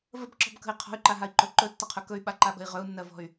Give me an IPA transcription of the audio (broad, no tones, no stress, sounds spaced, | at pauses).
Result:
v ə b ǁ ɔ̤ b k ə̤ i̯ qʰ ɔ̤ y̯ ǃ a ɦ a i̯ ǃ ɵ ǃ ɵ tː ə qʰ ɵ k ɵ y̯ ɓ a ǃ a ɓ ə̤ i̯ ʁ ɵ u̯ nː ɜ v ɔ̤ y̯